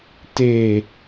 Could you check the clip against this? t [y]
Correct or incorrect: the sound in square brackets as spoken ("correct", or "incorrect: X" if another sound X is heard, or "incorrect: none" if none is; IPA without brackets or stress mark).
incorrect: e